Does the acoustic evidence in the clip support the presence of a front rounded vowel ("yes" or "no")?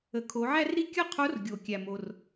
no